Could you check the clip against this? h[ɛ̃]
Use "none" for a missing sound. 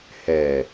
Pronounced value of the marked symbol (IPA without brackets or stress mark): ɛ